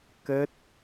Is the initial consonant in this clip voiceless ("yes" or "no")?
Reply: yes